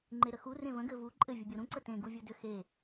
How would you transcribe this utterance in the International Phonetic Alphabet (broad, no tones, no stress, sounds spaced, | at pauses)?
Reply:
ŋ͡ǃ e ɾ ə x u r ẽ v ə̃ ɡ ɘ v u ǃʼ ɘ vʲ u bʲ ɤ ɾ ũ ǀ ə t ẽ ɡ u vʲ u d ʏ x e